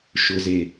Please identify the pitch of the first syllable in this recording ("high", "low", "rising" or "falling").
low